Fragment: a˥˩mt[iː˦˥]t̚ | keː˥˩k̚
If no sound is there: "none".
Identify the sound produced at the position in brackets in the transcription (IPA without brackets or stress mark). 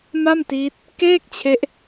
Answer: iː˦˥